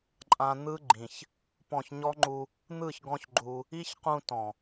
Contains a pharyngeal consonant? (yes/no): no